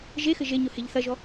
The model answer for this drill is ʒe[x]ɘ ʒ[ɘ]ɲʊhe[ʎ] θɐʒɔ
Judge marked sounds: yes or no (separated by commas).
yes, no, yes